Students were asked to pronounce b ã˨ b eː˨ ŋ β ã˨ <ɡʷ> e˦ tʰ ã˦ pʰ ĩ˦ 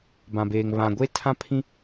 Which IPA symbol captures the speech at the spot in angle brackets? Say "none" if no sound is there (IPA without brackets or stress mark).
ɡʷ